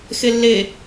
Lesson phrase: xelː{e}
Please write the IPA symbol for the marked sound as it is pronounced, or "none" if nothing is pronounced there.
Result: e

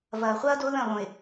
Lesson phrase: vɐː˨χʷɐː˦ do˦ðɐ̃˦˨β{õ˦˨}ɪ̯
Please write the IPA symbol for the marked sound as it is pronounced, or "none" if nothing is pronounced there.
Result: õ˨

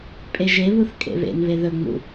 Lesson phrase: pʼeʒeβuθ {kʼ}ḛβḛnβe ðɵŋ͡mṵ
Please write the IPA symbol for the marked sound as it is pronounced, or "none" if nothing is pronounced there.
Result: kʼ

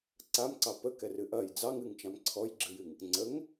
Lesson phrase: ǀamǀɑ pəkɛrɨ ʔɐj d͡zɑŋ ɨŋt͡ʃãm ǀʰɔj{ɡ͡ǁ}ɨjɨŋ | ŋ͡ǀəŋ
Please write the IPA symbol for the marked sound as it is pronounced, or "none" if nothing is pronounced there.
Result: ɡ͡ǁ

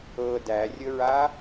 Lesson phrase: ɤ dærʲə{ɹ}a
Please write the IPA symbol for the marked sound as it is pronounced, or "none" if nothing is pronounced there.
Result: ɹ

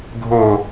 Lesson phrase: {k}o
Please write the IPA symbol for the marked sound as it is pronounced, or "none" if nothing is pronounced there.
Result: ɡʱ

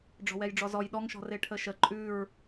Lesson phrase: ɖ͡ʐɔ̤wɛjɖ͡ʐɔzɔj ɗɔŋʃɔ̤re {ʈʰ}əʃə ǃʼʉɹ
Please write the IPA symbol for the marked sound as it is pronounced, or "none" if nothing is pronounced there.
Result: ʈʰ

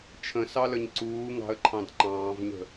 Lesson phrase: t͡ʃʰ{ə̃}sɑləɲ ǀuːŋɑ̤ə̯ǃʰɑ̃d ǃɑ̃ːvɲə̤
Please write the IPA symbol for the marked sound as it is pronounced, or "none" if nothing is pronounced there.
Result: ə̃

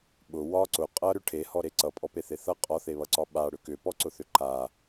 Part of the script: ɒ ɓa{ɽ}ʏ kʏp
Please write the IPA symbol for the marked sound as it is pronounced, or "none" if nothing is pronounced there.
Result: ɽ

